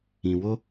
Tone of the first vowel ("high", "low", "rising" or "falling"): low